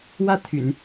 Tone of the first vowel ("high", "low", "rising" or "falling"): falling